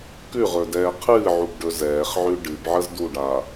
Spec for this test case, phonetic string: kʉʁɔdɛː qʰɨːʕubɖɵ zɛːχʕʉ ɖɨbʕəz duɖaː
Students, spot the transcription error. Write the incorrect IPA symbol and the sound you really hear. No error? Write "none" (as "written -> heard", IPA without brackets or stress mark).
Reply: ɔ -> ɵ